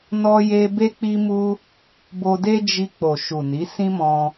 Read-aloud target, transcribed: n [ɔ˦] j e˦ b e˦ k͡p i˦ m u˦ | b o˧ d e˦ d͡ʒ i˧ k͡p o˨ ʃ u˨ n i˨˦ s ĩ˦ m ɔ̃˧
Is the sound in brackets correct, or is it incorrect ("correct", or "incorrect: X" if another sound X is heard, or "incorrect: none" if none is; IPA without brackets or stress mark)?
correct